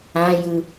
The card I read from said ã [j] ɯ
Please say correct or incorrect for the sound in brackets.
correct